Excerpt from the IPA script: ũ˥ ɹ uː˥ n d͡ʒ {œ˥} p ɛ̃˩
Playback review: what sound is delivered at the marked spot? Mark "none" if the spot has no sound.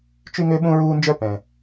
œ˥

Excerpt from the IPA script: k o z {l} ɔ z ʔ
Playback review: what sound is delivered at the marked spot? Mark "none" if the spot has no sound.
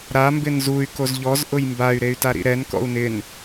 ʎ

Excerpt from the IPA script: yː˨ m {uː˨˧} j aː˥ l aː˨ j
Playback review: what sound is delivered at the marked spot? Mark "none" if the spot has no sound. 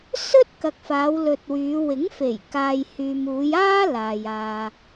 uː˨˧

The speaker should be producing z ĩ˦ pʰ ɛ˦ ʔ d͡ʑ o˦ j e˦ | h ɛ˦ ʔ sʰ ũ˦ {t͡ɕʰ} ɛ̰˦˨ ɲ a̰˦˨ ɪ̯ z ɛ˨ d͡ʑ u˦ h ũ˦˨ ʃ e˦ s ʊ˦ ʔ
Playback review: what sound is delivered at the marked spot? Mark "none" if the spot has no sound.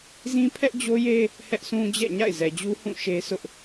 d͡ʑ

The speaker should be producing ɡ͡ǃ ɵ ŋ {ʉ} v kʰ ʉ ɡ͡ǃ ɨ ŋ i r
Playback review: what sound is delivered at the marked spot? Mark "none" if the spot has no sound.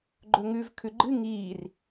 ʉ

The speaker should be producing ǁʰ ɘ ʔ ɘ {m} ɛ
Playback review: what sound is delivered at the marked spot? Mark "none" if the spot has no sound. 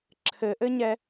ɲ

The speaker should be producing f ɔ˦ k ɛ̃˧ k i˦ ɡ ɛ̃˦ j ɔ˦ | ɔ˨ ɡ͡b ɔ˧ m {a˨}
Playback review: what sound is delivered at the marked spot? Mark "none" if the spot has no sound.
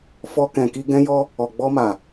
a˨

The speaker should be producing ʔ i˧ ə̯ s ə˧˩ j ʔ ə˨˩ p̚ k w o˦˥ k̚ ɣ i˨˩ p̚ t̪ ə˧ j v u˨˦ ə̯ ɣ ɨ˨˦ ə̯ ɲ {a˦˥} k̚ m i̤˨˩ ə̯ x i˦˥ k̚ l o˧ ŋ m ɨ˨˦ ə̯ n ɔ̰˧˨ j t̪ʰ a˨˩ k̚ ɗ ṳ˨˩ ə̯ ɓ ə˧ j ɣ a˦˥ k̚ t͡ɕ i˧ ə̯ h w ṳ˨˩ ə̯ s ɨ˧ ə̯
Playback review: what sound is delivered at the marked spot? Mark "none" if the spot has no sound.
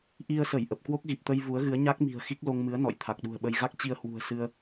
a˦˥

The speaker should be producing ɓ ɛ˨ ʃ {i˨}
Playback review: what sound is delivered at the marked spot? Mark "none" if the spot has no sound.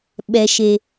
e˨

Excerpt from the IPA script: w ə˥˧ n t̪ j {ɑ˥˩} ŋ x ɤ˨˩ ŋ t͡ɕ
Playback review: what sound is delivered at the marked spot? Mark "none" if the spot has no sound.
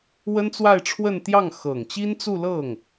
ɑ˥˩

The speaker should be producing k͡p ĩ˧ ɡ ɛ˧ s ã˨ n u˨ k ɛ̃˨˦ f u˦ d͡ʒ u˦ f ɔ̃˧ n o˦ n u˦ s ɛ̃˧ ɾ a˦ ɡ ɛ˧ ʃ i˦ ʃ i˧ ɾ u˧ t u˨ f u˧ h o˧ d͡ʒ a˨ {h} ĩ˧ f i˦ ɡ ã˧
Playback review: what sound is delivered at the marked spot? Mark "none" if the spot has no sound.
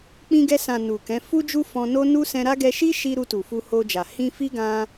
h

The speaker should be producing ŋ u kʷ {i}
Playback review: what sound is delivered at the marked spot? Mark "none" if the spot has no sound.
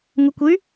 y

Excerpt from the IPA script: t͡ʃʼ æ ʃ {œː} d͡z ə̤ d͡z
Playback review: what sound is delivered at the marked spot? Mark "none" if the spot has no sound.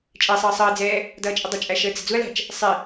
əː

